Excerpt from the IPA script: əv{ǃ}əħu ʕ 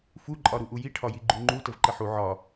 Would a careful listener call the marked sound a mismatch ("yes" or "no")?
no